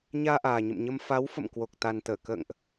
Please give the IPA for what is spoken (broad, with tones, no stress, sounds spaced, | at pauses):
ɲ aː˧ ʔ aː˨˩ ɲ ə̰˧˨ m ɲ ə˧ m f a˨˦ w f ə̰˧˨ m k w o˨˩ k̚ t̪ a˨˩ n t̪ əː˧˩ k ə̰ː˧˨ ŋ ʔ